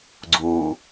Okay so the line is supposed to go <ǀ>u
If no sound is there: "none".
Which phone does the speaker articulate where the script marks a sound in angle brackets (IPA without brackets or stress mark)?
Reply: ɡ͡ǀ